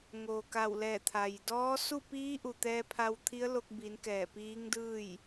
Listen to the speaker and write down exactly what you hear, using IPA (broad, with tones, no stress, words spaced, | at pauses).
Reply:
ŋoː˩ka˧˩wlɛː˧˩t̪ʰa˩j dɔː˧˥ su˥˨piː˧˥ʔu˩ t̪ɛː˧pʰa˧wt̪ʰi˧˥ə̯lo˧k̚ bi˩˧n kɛː˧˩piː˧˥ŋdɯː˥˨j